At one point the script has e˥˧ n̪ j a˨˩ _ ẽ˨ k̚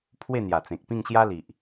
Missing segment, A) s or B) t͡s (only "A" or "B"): B